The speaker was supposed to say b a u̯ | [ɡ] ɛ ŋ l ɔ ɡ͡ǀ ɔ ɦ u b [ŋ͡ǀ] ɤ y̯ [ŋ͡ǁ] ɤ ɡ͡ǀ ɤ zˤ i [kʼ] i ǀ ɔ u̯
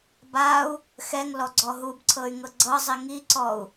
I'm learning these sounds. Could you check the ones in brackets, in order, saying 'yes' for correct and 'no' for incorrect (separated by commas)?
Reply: no, no, no, no